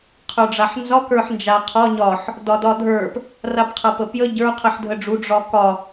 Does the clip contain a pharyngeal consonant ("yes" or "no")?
yes